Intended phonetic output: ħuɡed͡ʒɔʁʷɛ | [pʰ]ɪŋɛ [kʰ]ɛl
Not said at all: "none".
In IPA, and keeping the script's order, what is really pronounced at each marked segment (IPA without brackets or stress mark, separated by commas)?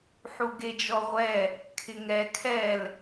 kʰ, kʰ